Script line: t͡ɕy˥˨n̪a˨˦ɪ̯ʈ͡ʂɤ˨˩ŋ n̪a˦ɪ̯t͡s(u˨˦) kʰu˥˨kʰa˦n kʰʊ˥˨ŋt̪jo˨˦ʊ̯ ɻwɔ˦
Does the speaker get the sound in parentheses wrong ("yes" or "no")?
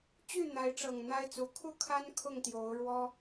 no